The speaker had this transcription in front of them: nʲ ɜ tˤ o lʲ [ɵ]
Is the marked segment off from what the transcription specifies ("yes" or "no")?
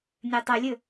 no